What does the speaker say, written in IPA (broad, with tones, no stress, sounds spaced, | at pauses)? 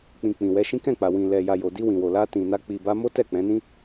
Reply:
k͡p ĩ˨ k͡p ĩ˨ w ɛ˨˦ ʃ ĩ˦ k ɛ̃˦˨ k͡p a˨ w ĩ˨ l ɛ˨ j a˨ j o˨ d i˧ w ĩ˨ w o˨ l a˧ t ĩ˨ n a˧ k͡p i˨ b a˧ m o˦ t ɛ˦˨ k͡p ɛ̃˨˦ n ĩ˦